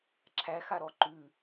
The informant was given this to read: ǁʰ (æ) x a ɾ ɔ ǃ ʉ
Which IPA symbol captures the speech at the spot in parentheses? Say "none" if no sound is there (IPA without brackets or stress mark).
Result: æ